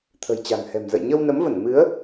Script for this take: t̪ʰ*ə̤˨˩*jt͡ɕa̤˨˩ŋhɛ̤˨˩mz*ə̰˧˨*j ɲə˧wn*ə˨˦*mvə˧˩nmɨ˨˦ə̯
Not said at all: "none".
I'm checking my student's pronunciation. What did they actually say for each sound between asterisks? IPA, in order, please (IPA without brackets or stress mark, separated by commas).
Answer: ə̤˨˩, ə̰˧˨, ə˨˦